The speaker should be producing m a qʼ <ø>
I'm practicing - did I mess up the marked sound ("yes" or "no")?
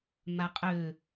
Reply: no